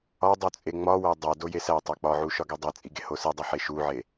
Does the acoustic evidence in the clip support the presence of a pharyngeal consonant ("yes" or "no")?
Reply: yes